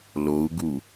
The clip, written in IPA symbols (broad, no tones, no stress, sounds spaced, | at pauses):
l o u̯ ɡ u